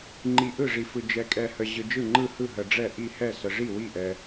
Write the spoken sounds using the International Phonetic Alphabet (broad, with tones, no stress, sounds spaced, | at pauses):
ŋ͡ǃ i˨ ʔ ɯ˥˩ ʐ i˨ f ɯ˨ d͡ʒ ɛ˨ kʼ ɛ˨ h ə˨ ʑ ɯ˨ d͡ʒ ɯ˥˩ ŋ͡ǃ ɯ˥˩ h ɯ˥˩ ɦ ə˨ ɖ͡ʐ ɛ˥˩ ʔ i˥˩ h ɛ˥˩ s ə˨ ʐ i˥˩ w i˥˩ ʔ ɛ˨